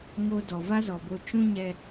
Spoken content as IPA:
ŋo˦ dɔ˨ va˦zɔ˨bo˧ t͡ʃũ˦ɲɛ˧

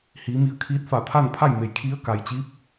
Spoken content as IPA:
hiː˩˧mi˧˩ə̯ kʰiː˧˥t̚ fa˧˩t̪ʰa˥˨npʰa˥˨jme˩˧j kʰi˧˥ə̯ka˩jt͡ɕiː˧˥p̚

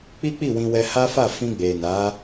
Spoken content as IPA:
k͡pi˦k͡pi˦˨wĩ˧wɛ˧ ha˦fa˦˨ fĩ˧ɡ͡be˨na˨˦

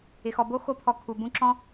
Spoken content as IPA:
ɪ˨xɔ˨ bo˦ xo˦pʰɔ˧ kʰu˨bũ˧ǁɔ̃˦

